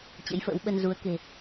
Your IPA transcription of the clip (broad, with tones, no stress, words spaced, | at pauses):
t͡ɕə̰˧˥jfə̰ː˧˥wɓə˧n zu˨˦ə̯ke̤˨˩